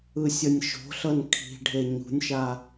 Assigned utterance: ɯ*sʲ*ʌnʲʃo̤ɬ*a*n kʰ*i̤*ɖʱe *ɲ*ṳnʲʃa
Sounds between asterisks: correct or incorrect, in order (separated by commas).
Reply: correct, incorrect, correct, correct